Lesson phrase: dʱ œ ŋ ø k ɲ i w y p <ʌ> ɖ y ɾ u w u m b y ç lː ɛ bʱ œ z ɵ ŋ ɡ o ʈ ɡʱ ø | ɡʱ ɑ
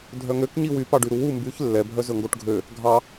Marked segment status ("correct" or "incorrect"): incorrect